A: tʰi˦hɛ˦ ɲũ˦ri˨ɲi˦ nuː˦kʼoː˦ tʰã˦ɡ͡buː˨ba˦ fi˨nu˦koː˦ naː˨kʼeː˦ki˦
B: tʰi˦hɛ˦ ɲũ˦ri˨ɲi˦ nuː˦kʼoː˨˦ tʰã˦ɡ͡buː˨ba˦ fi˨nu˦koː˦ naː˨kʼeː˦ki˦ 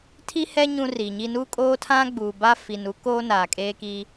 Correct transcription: A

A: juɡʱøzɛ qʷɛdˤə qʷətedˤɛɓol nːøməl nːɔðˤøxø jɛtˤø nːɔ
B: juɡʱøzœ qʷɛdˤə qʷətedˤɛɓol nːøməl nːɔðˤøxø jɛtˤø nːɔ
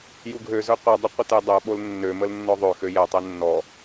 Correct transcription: B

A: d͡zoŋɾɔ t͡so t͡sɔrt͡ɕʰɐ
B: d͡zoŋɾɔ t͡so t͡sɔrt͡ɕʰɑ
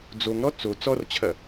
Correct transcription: A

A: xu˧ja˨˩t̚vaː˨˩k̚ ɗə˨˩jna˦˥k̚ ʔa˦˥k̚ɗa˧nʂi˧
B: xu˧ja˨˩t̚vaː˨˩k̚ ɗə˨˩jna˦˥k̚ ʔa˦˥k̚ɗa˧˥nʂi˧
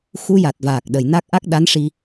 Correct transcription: B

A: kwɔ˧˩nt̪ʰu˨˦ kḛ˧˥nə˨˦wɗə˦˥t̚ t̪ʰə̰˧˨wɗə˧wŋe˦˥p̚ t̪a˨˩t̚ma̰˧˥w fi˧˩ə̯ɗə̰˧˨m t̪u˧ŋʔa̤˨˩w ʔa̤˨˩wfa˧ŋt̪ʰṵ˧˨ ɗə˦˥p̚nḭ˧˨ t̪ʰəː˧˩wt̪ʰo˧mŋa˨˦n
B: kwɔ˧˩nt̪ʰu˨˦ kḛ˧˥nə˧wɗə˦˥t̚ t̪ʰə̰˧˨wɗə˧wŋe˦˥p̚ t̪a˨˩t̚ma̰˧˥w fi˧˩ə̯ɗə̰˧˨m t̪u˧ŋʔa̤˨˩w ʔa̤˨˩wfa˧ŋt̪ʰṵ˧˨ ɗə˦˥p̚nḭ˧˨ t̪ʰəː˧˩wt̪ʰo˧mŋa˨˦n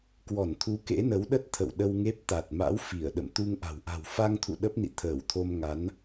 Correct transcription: A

